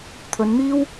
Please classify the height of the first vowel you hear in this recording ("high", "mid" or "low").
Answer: mid